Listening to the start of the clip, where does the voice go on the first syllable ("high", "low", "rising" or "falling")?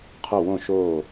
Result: falling